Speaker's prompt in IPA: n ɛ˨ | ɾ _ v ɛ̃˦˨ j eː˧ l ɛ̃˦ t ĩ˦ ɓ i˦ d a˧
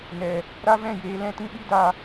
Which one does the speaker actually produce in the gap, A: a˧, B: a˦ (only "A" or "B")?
B